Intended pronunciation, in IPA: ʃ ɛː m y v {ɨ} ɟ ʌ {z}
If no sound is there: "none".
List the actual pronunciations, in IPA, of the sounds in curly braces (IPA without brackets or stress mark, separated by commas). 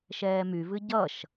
ɨ, ʃ